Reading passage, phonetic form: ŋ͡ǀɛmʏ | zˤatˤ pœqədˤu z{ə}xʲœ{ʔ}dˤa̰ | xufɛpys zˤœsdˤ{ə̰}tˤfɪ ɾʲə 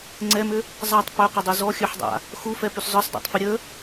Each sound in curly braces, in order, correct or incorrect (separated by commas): incorrect, incorrect, incorrect